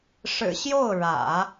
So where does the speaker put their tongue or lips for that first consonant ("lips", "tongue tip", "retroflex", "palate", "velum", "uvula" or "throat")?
retroflex